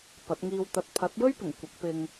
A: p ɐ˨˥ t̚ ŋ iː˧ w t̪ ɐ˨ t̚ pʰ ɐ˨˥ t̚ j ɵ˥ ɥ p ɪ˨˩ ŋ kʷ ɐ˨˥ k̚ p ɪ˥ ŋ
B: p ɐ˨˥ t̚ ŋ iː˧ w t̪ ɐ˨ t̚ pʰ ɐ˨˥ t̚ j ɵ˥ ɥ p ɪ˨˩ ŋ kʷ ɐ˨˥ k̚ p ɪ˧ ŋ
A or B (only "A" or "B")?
B